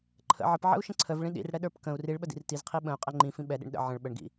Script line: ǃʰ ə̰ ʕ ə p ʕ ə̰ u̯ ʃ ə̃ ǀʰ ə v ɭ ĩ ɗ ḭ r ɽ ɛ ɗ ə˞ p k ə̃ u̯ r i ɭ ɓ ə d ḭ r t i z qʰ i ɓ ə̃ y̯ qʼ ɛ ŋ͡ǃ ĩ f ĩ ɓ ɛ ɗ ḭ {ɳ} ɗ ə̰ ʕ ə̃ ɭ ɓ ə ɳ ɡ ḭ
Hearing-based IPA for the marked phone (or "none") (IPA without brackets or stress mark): ɳ